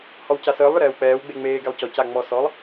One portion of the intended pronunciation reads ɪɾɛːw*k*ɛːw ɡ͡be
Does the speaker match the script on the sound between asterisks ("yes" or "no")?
no